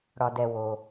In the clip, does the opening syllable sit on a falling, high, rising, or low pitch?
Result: low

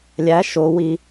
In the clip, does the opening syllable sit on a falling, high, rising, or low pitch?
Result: rising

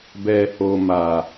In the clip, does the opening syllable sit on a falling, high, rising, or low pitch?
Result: low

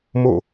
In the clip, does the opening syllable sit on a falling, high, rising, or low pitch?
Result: falling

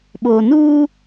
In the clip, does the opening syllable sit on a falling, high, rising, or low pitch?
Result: low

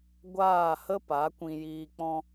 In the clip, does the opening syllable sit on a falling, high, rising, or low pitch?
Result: falling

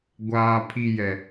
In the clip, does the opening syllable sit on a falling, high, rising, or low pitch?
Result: high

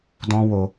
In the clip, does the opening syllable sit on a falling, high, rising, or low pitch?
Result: high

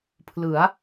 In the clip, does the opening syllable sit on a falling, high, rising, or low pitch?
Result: rising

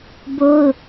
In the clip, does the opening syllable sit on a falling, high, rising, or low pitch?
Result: high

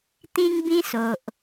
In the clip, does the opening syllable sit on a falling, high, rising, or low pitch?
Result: high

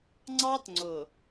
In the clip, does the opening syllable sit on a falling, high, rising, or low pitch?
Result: high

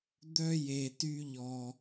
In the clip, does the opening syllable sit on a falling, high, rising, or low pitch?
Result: high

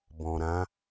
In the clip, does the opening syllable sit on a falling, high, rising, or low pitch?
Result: low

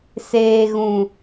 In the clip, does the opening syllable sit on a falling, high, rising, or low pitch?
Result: low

